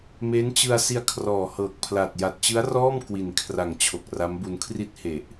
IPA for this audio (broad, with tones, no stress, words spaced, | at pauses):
me˦˥nt͡ɕɯ˧a̯ si˧a̯ kʰrɔː˨˩hɤː˨˩k̚pʰla˨˩t̚ ja˨˩t̚t͡ɕɯ˦˥a̯rɔː˥˩m kwi˨˩nkʰra˨˩ŋ t͡ɕʰo˨˩k̚ra˦˥mbu˧n kʰri˦˥t̚he˨˩ʔ